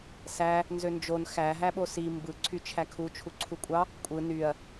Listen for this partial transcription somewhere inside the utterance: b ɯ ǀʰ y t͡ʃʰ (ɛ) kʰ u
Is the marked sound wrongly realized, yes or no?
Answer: yes